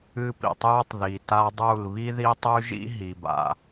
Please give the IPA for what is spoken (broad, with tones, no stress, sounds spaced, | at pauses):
ɨ˦ p ḭ˨ tˤ j u˦ tˤ ð i˨ t a˦ dˤ u˦˨ l β i˦ ð i˦ tˤ ʉ˦ ʒ ḭ˦ ɦ i˨ b a̰˨